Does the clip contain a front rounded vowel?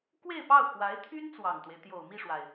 yes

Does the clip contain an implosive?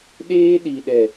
yes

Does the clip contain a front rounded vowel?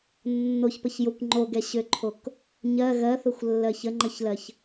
yes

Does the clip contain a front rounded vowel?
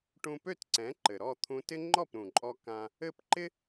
yes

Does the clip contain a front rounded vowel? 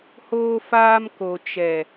no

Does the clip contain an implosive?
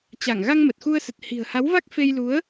no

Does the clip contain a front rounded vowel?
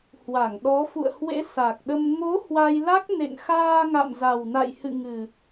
no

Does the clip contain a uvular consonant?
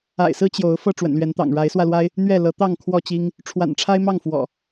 no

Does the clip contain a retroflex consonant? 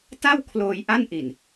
no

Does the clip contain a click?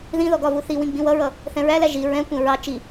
no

